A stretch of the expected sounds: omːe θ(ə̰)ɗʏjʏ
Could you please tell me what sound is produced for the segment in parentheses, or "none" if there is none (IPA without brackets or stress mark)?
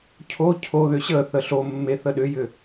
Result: ə